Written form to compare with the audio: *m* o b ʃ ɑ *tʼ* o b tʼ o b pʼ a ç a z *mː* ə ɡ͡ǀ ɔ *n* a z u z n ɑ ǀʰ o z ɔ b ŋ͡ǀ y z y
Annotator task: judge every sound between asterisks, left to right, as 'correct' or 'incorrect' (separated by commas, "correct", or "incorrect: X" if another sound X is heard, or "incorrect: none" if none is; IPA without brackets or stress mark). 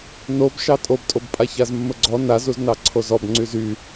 incorrect: n, correct, correct, correct